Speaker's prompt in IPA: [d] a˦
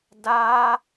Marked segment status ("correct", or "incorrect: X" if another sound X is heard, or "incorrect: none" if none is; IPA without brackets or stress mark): correct